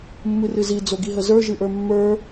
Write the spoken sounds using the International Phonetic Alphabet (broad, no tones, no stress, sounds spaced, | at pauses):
mː ɨ r ɨ z i d͡z o ɡ i ɦ ə z ə˞ ʒ ɨ ʔ ə˞ mː ə˞